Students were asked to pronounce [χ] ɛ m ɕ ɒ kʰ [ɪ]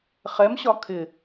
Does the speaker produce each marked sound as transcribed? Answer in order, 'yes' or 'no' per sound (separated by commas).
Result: yes, yes